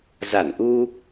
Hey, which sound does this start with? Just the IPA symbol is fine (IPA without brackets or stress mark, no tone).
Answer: z